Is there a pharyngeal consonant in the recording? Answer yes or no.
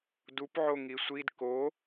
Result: yes